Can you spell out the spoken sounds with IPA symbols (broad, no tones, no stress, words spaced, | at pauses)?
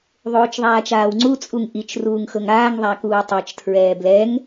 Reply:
ðˤoːt͡ʃðˤaːt͡ʃaːwŋ͡ǀu t͡sʼuŋʔit͡ʃ ruːŋxɤŋaːŋ ðˤakuːtˤɛt͡ʃ tʰɹɛːblɛŋ